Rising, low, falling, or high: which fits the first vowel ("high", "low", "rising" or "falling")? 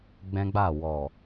high